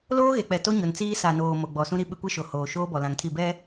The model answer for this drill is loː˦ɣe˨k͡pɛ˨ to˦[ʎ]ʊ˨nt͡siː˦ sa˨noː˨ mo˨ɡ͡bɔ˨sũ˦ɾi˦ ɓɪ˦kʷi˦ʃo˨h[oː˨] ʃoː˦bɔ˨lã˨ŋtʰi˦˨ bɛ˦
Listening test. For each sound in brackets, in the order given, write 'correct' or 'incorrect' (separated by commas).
incorrect, correct